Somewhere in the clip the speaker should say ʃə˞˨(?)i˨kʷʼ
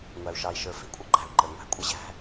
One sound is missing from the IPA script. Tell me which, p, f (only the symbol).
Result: f